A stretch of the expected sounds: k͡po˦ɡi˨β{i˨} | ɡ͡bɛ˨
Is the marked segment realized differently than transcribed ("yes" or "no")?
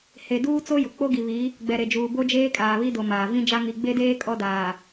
yes